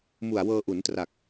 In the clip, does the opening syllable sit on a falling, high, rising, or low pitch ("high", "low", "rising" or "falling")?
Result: low